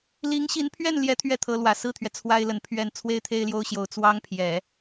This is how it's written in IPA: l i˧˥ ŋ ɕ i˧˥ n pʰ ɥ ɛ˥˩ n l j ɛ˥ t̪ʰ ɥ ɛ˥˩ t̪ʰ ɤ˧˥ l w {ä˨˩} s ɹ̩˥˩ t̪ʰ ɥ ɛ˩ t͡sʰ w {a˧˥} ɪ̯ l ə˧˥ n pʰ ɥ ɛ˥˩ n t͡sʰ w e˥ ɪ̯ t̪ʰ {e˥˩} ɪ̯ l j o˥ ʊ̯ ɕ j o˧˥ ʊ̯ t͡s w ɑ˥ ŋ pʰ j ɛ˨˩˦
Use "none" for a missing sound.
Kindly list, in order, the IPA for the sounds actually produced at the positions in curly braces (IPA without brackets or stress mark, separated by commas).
ä˨˩, a˥, e˥